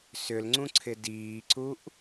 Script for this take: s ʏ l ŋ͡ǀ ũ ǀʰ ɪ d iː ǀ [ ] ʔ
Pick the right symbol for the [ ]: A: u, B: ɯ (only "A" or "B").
A